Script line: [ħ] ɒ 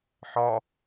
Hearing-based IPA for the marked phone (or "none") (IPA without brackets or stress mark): ħ